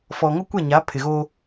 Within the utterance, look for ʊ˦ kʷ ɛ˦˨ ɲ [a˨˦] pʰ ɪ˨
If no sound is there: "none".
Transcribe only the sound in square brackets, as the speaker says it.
a˨˦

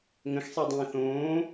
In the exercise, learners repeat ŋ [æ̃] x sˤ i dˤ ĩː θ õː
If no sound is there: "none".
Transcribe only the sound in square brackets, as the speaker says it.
ə̃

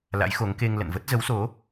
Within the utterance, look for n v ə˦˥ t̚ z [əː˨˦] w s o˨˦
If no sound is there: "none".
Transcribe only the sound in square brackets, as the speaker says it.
ə˨˦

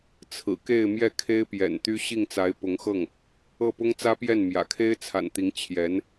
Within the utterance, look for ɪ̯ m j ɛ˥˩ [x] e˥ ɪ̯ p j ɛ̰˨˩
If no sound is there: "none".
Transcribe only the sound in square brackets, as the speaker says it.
kʰ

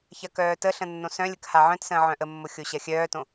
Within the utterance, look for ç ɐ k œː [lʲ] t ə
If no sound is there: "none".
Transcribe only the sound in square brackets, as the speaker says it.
none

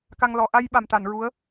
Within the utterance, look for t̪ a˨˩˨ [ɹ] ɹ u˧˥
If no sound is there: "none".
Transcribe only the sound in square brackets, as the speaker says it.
n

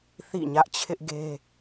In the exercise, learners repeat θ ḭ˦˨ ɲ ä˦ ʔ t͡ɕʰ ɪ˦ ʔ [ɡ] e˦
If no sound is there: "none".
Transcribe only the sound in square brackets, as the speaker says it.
ɡ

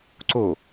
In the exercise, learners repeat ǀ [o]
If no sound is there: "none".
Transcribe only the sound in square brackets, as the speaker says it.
o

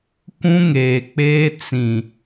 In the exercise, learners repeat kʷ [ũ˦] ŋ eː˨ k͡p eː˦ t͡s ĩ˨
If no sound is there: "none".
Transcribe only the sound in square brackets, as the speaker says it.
ũ˦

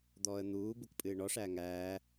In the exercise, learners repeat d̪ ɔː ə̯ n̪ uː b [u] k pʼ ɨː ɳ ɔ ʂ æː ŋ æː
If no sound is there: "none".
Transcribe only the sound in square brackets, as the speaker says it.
u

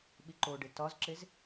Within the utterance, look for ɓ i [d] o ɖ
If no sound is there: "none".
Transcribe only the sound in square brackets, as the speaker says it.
ǃ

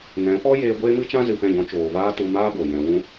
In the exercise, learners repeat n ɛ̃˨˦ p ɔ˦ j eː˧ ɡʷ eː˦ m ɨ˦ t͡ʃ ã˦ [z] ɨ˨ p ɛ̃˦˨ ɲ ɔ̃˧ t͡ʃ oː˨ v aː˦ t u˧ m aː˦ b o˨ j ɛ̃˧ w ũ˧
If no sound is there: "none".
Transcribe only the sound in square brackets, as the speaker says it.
z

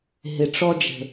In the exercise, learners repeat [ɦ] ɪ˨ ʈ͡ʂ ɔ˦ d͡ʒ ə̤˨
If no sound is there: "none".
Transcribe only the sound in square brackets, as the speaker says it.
ɦ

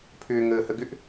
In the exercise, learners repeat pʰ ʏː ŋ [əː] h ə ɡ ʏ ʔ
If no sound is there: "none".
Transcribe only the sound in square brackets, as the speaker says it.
əː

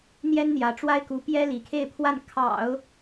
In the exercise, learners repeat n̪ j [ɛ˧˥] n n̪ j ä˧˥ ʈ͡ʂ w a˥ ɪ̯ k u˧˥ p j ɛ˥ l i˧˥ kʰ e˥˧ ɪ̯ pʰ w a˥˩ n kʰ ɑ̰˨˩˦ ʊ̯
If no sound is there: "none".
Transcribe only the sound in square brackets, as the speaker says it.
ɛ˥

